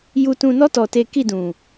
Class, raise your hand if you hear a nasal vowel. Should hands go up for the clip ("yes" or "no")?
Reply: yes